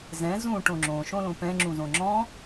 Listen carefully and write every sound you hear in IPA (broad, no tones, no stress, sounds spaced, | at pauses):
z ɛ̃ z ũ ʈ õ ŋ͡ǁ õ ʃ õ l õ p ɛ̃ ŋ͡ǁ ũ z õ ŋ͡ǁ ɔ̃